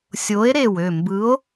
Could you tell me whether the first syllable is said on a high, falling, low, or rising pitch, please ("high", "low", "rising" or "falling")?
rising